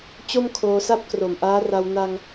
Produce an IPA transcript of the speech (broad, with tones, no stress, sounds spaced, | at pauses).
t͡ɕ o˥˩ m kʰ oː˧ s a˥˩ p̚ k r o˨˩ m ʔ aː˦˥ r a˧ w n a˧ ŋ